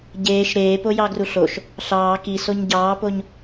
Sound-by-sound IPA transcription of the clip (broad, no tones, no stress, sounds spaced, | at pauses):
ɟ eː ʃ ɾ eː p o j ɑ ɡ r u ɬ o ʃ | ɬ ɑː k i s o ɲ ɟ ɑː p o ɲ